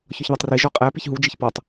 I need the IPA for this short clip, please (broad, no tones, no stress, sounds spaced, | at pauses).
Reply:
ç ɒ ç ð ɑ tˤ r i ʒ ɔ qʼ æ p i ç ɦ u d͡ʒ i ç p ɔ tˤ